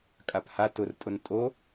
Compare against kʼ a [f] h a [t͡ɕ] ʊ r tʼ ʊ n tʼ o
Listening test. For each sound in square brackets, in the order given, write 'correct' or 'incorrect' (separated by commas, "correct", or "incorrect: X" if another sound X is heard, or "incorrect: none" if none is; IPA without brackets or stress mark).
incorrect: p, incorrect: t